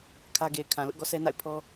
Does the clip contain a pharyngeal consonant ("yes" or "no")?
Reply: no